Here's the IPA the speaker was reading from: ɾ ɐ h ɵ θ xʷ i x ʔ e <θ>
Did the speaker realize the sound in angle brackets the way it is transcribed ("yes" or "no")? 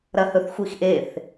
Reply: yes